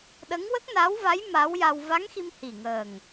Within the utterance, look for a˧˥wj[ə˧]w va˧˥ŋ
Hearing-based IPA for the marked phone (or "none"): a˧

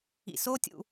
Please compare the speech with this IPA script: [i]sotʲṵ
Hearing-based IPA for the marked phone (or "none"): ḭ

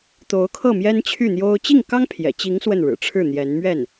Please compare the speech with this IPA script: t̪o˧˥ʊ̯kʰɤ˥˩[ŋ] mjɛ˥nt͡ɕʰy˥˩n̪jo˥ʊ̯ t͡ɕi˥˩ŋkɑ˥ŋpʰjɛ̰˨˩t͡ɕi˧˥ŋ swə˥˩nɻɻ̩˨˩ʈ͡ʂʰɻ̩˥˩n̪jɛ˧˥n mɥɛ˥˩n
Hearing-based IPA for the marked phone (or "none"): none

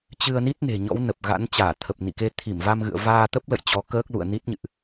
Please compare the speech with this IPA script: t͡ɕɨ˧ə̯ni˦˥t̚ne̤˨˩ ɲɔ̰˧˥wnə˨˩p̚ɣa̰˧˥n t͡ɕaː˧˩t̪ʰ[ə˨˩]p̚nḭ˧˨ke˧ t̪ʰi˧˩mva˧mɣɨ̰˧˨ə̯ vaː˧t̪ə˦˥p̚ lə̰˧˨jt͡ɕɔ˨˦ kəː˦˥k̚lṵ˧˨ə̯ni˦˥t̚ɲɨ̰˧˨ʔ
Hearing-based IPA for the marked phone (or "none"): ə˨˩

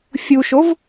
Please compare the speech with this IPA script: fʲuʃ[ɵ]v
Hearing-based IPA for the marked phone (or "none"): o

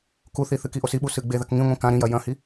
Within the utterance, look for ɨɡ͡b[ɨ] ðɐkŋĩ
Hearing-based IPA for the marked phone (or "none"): e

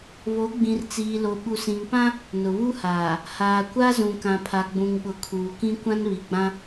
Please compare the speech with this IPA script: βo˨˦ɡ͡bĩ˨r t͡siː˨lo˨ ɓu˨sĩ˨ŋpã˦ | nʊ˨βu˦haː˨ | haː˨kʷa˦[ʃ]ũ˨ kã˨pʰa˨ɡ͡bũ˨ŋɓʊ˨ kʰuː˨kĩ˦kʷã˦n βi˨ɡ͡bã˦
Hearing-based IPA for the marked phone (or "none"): z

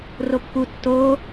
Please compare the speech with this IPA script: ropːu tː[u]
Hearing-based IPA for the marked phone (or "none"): o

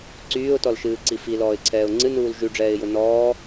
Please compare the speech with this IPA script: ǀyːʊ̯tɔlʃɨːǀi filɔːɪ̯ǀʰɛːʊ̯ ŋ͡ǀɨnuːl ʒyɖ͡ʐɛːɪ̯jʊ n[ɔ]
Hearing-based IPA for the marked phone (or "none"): ɔː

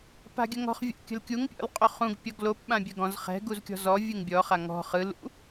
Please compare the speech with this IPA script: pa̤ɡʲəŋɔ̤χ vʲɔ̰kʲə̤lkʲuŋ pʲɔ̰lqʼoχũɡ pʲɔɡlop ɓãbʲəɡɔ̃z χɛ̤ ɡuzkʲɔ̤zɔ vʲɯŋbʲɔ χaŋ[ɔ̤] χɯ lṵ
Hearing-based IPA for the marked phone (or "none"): ɔ̤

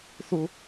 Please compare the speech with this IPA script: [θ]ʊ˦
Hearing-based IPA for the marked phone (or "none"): θ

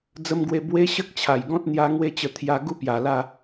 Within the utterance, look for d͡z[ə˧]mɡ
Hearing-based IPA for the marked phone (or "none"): ə˧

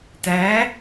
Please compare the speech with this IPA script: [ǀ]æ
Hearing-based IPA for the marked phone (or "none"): t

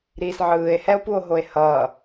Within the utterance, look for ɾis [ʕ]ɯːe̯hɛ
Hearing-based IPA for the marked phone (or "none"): ʕ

